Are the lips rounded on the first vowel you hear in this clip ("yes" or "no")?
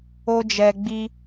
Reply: yes